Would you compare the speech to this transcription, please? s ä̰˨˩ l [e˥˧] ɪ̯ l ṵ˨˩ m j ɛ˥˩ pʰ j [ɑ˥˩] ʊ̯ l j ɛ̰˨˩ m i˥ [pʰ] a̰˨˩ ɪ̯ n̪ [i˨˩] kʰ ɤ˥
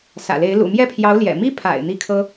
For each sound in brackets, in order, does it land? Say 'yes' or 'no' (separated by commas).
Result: no, no, yes, no